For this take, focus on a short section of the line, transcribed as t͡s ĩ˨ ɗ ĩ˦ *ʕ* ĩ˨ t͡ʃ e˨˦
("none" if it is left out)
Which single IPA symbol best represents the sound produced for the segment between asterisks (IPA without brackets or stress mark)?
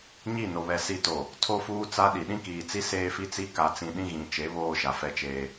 ɣ